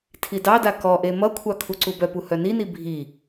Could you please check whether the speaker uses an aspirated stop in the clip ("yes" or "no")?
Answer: yes